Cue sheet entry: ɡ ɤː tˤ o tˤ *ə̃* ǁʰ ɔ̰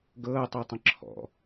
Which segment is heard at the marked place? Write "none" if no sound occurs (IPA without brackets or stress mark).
ə̃